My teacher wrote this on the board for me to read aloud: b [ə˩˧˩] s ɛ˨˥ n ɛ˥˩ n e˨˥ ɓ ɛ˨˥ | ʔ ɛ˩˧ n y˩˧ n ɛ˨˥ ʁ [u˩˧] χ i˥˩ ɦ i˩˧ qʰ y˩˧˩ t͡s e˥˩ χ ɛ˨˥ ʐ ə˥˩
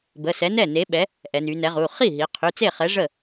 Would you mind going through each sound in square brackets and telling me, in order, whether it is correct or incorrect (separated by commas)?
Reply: correct, incorrect